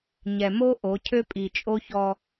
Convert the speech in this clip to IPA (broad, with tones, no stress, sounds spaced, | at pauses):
ɲ ɛ˨ m o˦ ʔ o˨˦ cʰ ø˦ pʼ i˨ t͡ʃʼ o˦ ç ɔ˦